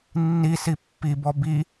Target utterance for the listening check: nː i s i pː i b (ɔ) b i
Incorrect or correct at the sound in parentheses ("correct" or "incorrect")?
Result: correct